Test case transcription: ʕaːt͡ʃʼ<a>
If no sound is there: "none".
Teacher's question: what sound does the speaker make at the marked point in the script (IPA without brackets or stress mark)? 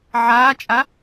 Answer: a